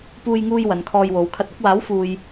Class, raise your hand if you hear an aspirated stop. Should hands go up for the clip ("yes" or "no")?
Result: yes